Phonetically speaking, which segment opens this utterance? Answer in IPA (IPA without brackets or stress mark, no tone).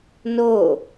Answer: n